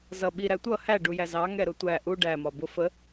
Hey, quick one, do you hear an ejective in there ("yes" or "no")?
no